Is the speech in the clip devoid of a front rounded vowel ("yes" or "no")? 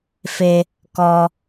yes